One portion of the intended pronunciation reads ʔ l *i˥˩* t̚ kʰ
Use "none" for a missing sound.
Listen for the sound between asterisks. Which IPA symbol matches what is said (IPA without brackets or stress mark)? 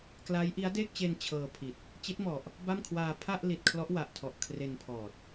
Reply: i˨˩